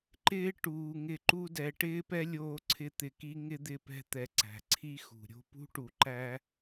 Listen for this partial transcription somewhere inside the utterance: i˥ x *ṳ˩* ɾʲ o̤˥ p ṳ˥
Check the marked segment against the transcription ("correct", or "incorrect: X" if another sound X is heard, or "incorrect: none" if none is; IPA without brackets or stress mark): correct